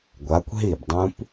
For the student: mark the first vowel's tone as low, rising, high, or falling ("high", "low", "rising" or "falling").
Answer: rising